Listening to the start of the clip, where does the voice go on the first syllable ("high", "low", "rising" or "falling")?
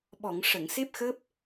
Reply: low